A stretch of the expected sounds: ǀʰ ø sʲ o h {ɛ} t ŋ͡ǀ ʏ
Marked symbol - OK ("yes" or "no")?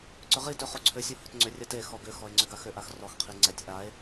no